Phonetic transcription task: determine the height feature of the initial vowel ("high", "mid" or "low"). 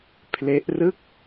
mid